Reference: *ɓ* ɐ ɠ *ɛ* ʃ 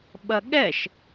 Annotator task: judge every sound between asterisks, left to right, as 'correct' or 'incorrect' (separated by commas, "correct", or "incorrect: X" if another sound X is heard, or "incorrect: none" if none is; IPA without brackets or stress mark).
correct, correct